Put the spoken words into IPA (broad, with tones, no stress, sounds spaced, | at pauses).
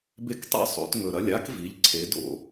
b e˦ k tˤ ḛ˦ sˤ o̰˩˧ t ŋ ɵ˩ ɾ ɐ˩˧˩ lʲ a˦ k v i˩˧ ʎ ǀʰ e˩˧ d o̰˩